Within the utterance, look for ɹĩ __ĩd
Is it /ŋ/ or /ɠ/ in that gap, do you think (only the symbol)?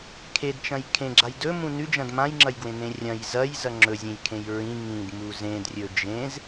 ŋ